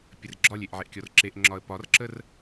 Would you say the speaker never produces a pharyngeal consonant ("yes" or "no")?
no